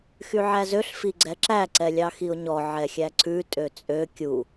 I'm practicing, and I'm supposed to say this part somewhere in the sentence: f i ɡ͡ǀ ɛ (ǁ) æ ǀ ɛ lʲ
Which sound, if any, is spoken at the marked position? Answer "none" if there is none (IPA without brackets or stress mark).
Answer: ǁ